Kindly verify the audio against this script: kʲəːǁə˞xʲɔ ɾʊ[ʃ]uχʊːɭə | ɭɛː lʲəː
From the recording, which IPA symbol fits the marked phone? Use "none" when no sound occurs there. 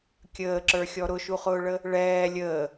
ʃ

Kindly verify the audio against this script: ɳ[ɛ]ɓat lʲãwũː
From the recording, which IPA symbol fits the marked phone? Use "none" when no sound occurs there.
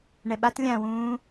ɛ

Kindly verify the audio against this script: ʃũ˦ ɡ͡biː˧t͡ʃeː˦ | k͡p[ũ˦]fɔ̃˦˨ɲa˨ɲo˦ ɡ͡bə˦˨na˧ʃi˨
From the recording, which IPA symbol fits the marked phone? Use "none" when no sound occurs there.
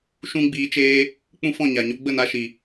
ũ˦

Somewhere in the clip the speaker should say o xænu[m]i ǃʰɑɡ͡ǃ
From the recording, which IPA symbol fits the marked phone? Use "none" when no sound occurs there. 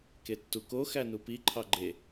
p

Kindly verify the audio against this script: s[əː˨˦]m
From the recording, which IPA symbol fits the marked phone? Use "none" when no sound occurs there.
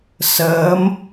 əː˨˦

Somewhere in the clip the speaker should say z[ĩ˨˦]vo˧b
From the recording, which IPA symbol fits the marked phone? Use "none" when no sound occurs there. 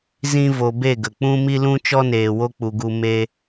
ĩ˦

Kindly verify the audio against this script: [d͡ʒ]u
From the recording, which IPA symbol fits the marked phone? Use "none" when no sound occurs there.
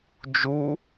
d͡ʒ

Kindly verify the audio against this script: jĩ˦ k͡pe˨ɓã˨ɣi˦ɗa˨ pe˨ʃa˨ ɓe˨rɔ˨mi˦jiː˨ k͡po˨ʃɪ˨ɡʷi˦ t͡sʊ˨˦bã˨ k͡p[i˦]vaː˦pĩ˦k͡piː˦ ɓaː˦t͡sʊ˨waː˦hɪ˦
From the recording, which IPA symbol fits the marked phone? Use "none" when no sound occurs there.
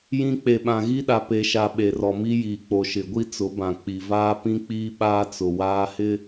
i˨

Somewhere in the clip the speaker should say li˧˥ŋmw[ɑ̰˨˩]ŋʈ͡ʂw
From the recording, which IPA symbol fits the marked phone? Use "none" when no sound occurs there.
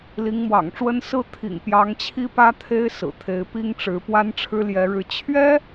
ɑ̰˨˩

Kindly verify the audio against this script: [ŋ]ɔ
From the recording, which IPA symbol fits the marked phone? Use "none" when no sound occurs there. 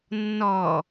nː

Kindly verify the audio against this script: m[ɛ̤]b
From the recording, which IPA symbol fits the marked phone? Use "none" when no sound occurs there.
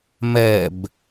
ɛ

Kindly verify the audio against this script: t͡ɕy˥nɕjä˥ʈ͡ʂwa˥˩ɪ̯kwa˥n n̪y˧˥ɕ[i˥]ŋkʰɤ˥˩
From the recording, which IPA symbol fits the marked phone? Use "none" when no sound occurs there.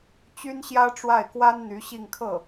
i˥˧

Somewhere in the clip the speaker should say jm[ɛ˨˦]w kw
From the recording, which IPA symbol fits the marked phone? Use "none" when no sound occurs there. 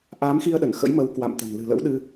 ə˨˦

